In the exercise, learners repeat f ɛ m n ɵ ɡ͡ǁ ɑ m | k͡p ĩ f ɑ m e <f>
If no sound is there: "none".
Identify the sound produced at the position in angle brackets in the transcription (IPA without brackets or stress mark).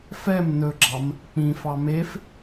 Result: f